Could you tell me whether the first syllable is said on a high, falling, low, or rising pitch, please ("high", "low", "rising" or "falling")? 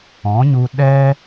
rising